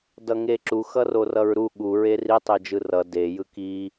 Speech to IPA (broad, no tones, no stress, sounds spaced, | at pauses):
d ʌ ŋ e ǁ u x ʌ r o r ʌ ɹ ɾ u ɠ u ɹ e r i tˤ e d͡ʒ ɯ r ʌ d e j ɯ k i